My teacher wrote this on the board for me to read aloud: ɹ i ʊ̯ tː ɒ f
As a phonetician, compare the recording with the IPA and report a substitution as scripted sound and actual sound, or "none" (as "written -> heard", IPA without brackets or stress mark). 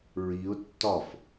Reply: none